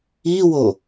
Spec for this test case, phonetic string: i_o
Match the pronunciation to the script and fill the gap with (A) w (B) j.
A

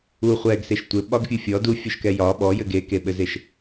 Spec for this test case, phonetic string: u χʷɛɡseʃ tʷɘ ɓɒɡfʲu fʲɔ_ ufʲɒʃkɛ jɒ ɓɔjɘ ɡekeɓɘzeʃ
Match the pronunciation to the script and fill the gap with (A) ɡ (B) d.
B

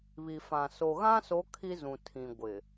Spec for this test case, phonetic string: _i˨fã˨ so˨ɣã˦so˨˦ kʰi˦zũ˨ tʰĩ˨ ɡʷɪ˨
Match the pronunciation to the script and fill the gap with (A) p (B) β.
B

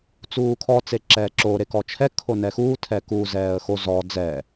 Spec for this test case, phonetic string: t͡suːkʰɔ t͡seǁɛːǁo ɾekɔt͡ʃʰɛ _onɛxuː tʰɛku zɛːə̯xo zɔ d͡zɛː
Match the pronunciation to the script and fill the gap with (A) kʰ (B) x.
A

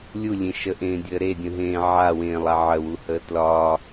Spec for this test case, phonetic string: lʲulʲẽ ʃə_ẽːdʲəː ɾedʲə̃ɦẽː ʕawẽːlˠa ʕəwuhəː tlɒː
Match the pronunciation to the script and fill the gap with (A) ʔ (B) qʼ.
A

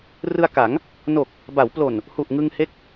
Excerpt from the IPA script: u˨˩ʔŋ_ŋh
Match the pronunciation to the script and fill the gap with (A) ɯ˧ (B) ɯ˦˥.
A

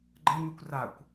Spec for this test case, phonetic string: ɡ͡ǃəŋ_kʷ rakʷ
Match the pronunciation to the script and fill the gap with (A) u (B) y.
B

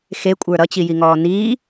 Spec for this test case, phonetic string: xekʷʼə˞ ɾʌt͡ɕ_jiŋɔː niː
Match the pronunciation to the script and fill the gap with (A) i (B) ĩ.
A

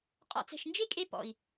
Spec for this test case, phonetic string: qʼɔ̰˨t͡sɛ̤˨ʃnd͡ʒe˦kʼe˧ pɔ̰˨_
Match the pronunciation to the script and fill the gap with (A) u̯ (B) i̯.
B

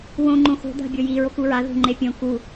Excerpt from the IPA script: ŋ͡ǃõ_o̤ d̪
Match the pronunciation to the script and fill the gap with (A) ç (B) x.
B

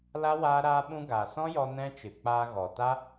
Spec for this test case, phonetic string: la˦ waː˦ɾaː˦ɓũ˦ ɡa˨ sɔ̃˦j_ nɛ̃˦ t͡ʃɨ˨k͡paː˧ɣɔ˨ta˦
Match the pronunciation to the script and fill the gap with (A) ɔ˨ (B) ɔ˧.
B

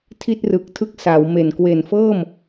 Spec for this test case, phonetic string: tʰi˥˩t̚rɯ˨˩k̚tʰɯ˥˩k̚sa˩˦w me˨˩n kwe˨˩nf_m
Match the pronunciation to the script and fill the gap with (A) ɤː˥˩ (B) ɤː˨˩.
A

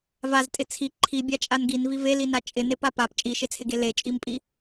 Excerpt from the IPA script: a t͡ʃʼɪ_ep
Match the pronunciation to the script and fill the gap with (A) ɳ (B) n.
B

